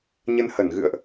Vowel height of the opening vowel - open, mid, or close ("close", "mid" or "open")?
mid